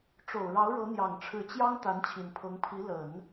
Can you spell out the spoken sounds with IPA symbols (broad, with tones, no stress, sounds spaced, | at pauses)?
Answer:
ʈ͡ʂ o˨˩ ʊ̯ ɻ ɑ˧˥ ʊ̯ ɻ ɤ˧˥ n̪ j ɑ˨˩ ŋ ʈ͡ʂʰ ɻ̩˧˥ t͡ɕ j ɑ˥ ŋ t̪ a˧˥ n t͡ɕʰ i˨˩ n pʰ ɤ˧˥ ŋ pʰ i˧˥ l ə˨˩˦ n